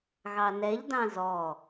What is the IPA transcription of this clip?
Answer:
ɣ ɑ n ɛ ʎ d ɑ̃ z ɔ

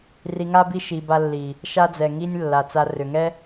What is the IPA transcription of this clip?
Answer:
r i˧ ŋ a˦ b i˦ ʃ i˧ b a˦ lː i˨ | ʃ a˦ d͡z ɛ˨ ŋ i˦ nʲ lː a˨ t͡s a˧ r ʏ˨ ŋ ɛ˦

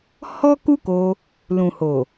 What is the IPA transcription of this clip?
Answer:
h ɔ˦ k u˦ k o˧ | l ũ˨ h o˨

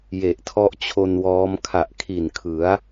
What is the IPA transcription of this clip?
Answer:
j e˨˩ ʔ tʰ ɔ˦˥ ʔ t͡ɕʰ o˧ n w ɔː˦˥ m kʰ a˨˩ ʔ kʰ i˨˩ n kʰ ɯ˩˦ a̯

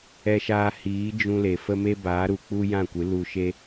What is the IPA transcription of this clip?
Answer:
ɛ˧ ʃ aː˧ h iː˨˦ d͡ʒ ũ˧ l e˨ f ə˦ m e˦ b aː˨˦ ɾ u˨ k͡p u˦ j ã˦˨ kʷ ɨ˨˦ l u˧ ʃ e˦

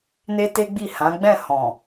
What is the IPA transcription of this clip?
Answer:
n e˦ t e˦ ɡ͡b i˦˨ h ã˨˦ ɡ͡b ɛ̃˦˨ h ɔ̃˨

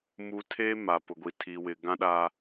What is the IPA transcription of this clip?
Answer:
m u˦ tʰ e˦ m a˨ p ʊ˨ ɡʷ i˨ tʰ i˨ w ɪ˨ ɡ ã˦ ɗ a˦

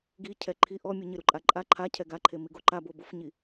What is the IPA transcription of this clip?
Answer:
ɡ i cʰ ɛ ǃʰ i ʔ ɔ mʲ u ɲ ɪ ɾ u ǃʼ a ǃʼ a ǃʰ a cʰ ɛ ɡ a ǃʰ e m i ɡ o ǃ a b o b ʊ f ɲ i

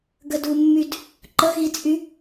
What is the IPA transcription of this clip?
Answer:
ɡ ə d u mː y d | ǃ ə ɣ i t͡sʼ y

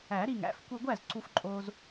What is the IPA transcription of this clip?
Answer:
æ˨˩˦ ɾ i˧˩ ŋ æ̰˧˥˧ f kʷ i˧ ɡʷ æ˥˨ z ǀ u˧ f ǃʼ oː˧ z

